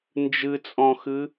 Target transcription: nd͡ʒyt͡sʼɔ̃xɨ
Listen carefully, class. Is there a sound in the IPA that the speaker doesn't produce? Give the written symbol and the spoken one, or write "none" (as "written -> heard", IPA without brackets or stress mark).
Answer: y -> ɨ